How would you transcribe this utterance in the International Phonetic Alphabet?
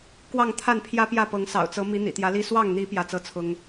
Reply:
k w ɑ˥˨ ŋ t̪ʰ a˥˨ n pʰ j ä˦ p j ä˥˨ p ɤ˨˦ ŋ s ɑ̰˨˩ ʊ̯ t͡s ɤ˨˦ m i˨˦ n̪ ḭ˨˩ t̪ j ä˨˦ l i˥˨ s w ɑ˥˨ ŋ n̪ i˨˦ p j ä˥˨ t͡s ɤ˥˨ t͡sʰ ʊ˦ ŋ

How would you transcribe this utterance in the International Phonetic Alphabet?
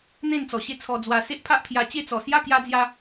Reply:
n̪ ẽ˥˧ n t͡s ɔ˨˩ ɕ e˥˧ t͡sʰ ɔ˧ d͡z w a˧ s e˦ ʔ pʰ a˦ ʔ t̪ʰ j a˧ t͡ɕ e˥˧ t͡s ɔ˨˩ s j a˥˧ k j a˦ d͡z j a˦

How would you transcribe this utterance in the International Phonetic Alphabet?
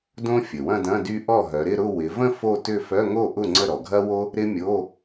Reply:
d õ˥ fʲ ə˩ w ɐ̃˥˧ d ɐ̃˧˥˧ d y˥ ʔ ɔ˥˩ ɦ œ˩˧ ɾ ɪ˥˧ ɾ ʊ˥˧ w ɪ˩˧ v ə̃˥˧ f o˥˧ t ʏ˥˧ f œ˧˥˧ ŋ o˥˩ ʔ ʊ˥˩ ŋ͡ǀ ə˥˩ ɾ ɔ˩ ɡʱ ɐ˥ w o˥ | ɾ ɪ˥ mʲ o˧˥˧

